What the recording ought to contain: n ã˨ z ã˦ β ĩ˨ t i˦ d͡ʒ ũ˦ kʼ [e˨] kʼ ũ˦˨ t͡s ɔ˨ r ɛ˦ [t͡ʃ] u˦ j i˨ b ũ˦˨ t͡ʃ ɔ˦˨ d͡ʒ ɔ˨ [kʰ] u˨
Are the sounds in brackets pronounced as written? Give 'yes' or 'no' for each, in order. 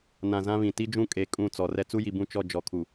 yes, no, yes

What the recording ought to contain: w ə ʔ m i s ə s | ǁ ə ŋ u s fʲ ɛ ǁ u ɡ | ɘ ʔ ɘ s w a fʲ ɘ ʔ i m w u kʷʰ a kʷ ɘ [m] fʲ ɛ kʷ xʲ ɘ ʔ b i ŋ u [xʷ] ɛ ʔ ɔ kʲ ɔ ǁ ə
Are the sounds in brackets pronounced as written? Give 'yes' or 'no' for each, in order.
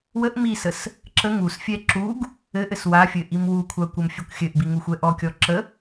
yes, yes

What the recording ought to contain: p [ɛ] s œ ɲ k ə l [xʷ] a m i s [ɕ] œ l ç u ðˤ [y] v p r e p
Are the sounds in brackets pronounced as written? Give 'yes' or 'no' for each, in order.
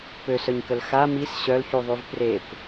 no, no, yes, yes

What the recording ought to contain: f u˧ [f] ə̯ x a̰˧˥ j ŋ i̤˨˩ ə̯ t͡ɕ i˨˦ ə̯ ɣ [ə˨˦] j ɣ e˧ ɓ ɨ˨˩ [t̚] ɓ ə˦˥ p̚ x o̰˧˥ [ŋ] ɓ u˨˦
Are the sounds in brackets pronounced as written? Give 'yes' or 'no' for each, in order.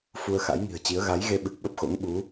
no, no, no, yes

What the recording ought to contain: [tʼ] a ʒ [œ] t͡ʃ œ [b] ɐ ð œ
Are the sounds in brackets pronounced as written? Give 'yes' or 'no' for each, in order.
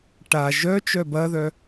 no, yes, yes

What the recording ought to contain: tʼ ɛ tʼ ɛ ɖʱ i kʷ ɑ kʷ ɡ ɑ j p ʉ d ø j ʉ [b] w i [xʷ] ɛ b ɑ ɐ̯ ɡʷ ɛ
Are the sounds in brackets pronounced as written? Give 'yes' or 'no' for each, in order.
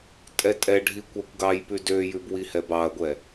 yes, no

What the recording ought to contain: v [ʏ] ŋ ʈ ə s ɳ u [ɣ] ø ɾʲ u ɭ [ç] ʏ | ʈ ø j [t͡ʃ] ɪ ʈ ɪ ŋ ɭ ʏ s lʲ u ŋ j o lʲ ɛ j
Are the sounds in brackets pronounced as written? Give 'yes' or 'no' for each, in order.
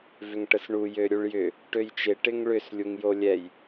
yes, no, no, yes

